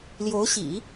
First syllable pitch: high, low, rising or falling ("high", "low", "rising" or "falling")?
rising